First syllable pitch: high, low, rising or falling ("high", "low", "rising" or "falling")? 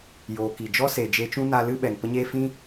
low